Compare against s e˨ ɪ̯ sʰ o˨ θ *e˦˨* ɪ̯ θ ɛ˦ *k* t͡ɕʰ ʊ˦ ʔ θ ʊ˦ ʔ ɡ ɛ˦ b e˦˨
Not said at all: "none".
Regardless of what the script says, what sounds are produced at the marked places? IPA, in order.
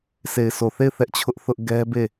e˦˨, ʔ

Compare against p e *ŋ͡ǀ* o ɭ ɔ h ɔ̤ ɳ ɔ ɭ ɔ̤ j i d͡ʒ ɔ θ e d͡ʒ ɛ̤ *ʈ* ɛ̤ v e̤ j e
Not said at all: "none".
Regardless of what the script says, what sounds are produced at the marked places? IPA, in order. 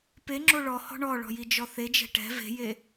ŋ͡ǁ, ʈ

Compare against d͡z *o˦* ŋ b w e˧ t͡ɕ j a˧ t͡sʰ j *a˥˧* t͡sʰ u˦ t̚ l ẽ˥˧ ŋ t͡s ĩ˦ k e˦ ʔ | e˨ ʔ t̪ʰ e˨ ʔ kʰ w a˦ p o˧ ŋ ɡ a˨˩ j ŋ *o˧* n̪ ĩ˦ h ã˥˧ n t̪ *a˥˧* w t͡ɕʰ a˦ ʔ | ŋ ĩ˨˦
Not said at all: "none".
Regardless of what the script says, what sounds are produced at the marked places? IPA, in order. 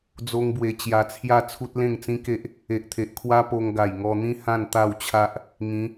o˦, a˥˧, ɔ˧, a˥˧

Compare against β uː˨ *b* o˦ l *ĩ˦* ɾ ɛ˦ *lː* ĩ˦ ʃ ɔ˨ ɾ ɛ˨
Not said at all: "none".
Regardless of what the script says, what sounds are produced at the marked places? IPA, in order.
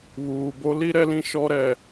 b, i˦, l

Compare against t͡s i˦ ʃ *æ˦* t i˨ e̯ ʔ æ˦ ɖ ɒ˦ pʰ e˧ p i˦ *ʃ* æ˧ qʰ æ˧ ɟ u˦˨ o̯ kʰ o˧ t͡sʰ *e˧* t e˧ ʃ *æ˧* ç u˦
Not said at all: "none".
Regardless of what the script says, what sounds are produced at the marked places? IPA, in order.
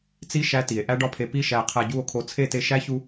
æ˦, ʃ, e˦˨, æ˦

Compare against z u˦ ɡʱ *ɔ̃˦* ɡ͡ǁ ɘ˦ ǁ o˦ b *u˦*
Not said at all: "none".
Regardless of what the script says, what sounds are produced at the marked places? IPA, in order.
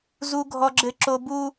ɔ˦, u˦

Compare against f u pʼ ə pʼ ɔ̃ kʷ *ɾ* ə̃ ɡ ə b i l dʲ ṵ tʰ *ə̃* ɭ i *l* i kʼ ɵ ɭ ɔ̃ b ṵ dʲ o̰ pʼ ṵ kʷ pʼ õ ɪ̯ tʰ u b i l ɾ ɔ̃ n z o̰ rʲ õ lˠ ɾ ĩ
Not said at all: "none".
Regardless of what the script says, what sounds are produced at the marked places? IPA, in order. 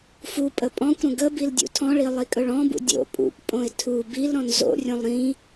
ɾ, ɔ̃, lˠ

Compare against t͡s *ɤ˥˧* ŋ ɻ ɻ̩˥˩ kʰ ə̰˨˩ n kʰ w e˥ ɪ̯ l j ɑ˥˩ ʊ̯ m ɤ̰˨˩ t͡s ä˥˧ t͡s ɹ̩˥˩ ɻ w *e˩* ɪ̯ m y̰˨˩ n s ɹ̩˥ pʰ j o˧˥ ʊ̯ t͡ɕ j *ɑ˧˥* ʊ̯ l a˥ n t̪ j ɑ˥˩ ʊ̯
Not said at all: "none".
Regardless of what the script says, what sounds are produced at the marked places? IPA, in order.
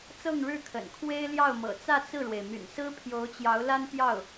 ɤ˥˧, e˩, ɑ˧˥

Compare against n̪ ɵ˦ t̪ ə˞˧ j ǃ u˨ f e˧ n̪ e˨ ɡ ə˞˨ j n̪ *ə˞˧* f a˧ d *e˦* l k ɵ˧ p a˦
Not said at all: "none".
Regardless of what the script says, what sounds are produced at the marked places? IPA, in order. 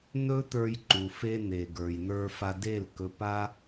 ə˞˧, e˦˨

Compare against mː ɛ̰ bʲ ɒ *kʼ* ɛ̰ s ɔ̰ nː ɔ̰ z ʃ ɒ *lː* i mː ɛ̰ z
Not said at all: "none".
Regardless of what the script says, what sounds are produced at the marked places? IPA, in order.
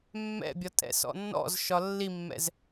tʼ, lː

